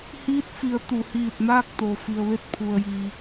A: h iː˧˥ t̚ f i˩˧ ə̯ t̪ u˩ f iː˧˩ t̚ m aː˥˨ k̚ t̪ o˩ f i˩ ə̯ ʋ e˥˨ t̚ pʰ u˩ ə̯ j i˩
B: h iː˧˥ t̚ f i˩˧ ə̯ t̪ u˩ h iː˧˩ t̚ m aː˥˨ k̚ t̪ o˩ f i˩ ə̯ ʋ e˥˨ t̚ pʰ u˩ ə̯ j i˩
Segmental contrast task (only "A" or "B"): B